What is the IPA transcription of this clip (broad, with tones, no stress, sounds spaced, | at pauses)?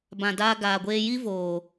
b ã˨ d aː˧ ɡ aː˨ ɡʷ eː˧ j i˦ v oː˨